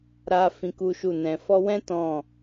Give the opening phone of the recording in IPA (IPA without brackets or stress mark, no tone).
ɾ